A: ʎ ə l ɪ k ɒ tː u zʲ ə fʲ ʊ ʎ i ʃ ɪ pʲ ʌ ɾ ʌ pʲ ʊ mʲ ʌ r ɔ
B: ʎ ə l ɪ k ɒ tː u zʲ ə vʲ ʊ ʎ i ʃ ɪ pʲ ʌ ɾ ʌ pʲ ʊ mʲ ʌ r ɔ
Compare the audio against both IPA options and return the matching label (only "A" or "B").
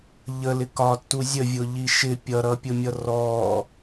B